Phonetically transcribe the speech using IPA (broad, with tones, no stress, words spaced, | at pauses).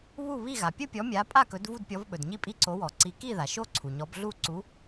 βu˥˨βi˥˨ ɣa˩pʲɵ˥˨pʲɔ˨˦mʲa˨˦ pʼa˥˨kɵ˨˦d vu˥˨dpʲɔ˨˦vɓɵ˩d ɲi˥˨pʼi˥˨ ǀo˨˦wɔ˩ǀi˨˦ ki˥˨ða˩ʃo˥˨ ǀʰu˩ɲɔ˨˦b ɮu˥˨ ǀu˨˦